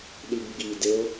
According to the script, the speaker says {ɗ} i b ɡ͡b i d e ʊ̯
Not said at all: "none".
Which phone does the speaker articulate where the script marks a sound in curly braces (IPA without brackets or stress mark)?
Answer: ɗ